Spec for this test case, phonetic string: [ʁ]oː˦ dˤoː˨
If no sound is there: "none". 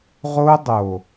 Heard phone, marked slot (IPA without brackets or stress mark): ʁ